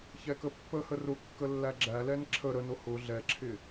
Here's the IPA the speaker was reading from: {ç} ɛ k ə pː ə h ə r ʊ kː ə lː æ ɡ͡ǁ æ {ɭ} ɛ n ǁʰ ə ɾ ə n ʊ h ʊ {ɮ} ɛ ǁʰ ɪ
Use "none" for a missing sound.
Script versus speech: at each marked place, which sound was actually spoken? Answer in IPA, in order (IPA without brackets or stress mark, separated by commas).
ç, l, ɮ